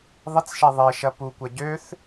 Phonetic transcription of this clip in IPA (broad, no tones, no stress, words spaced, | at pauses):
ðˤɪt͡sʃɛ ðˤeʃɐ pukʷɐ ɟøθ